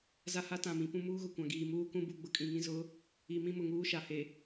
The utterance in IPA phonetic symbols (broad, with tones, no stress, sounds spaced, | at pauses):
z a˦ h a˦ t ã˨ m ĩ˨ p ũ˦ m uː˦ ɣ ʊ˨ kʷ ã˨ ɡ iː˨ m uː˦ k ũ˦ b u˦˨ ɡ͡b ʊ˦ kʼ ĩ˨ ŋ ĩ˦ z ʊ˨˦ | i˨ m ĩ˦ m ʊ˨ ŋ uː˦ ʃ a˨ h e˨